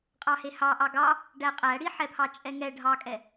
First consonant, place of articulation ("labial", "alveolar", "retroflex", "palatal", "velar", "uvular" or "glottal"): uvular